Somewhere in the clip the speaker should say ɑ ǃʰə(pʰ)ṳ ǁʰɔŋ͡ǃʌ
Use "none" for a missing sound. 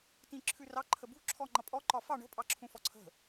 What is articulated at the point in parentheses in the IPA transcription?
b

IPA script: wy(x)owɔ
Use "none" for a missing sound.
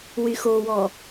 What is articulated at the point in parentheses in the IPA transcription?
x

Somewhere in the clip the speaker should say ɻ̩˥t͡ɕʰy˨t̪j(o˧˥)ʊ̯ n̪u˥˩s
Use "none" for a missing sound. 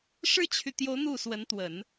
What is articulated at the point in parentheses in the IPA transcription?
o˧˥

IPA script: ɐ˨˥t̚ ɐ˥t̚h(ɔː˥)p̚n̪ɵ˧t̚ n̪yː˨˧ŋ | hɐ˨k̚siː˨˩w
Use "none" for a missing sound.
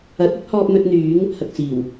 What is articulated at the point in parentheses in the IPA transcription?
ɔː˧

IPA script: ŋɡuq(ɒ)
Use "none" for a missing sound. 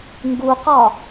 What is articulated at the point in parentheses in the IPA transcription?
ɒ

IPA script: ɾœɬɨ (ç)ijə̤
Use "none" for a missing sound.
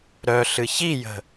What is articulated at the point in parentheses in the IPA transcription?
ç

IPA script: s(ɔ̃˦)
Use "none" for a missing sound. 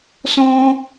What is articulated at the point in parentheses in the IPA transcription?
ɔ̃˦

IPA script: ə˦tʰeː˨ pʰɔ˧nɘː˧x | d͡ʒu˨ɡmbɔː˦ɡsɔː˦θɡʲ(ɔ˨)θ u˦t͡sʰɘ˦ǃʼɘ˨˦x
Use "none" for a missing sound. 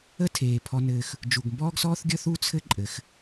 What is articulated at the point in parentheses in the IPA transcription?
ɔ˦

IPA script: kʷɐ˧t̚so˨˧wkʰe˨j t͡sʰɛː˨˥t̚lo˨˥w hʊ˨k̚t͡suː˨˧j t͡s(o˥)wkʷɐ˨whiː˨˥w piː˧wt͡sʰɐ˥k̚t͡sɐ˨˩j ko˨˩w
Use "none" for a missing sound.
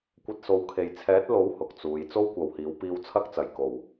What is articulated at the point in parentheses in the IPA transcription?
o˥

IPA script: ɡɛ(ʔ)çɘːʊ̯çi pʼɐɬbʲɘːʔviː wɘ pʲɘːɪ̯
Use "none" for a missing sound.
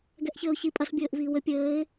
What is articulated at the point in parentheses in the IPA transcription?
ʔ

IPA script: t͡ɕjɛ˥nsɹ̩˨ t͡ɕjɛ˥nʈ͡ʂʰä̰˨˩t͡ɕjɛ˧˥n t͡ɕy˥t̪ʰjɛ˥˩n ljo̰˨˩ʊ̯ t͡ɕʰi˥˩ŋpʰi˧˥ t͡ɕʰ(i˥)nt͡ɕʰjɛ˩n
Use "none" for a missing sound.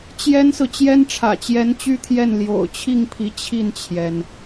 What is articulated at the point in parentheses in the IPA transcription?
i˥˩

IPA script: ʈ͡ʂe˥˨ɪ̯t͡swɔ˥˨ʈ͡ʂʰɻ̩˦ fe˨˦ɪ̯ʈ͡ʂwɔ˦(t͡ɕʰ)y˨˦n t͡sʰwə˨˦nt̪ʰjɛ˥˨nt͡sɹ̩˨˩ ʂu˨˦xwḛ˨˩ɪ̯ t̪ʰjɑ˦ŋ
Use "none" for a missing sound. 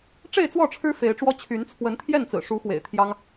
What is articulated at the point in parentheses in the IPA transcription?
t͡ɕʰ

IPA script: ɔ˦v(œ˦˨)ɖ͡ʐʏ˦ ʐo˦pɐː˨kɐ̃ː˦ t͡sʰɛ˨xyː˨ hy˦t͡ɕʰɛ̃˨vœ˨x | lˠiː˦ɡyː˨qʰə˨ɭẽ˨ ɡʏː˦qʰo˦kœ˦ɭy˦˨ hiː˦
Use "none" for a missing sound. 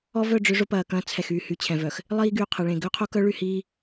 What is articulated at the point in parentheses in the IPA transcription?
œ˦˨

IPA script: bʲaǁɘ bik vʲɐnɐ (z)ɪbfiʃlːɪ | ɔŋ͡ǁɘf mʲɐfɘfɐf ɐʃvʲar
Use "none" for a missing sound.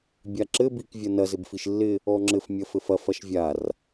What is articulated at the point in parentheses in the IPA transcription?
z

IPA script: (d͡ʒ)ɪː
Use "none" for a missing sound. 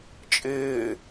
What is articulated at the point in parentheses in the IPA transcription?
t͡ʃʼ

